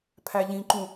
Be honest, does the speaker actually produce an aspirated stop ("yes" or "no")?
yes